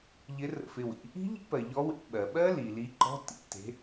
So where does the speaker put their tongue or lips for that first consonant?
palate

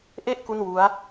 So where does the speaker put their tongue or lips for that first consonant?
throat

